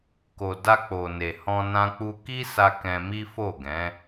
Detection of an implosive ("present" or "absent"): absent